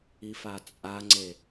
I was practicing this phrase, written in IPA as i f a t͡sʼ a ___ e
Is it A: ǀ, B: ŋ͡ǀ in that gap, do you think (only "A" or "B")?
B